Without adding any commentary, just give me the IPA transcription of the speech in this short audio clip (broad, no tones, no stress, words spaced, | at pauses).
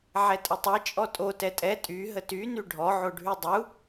ʕɛtʼətˤɛ t͡ʃʼɔtʼo tɛtʼɛ tʼy ɦəty nyɖʱɔ ʕoɖʱydˤu